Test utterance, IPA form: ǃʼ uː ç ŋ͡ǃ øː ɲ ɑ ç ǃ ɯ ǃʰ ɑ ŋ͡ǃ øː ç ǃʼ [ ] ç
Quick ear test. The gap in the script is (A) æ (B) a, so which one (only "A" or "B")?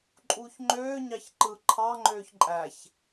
A